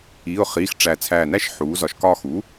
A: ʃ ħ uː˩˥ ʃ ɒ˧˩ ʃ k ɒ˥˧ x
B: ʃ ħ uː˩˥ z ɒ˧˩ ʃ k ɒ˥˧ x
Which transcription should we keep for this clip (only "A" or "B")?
B